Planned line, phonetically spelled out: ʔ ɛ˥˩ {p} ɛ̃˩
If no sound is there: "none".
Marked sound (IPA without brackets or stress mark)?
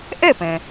p